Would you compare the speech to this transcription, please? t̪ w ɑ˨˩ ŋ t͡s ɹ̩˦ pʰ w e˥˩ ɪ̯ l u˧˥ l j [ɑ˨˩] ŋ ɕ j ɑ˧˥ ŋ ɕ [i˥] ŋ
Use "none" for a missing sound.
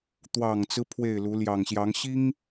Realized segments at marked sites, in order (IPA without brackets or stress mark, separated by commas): ɑ˨˩, i˥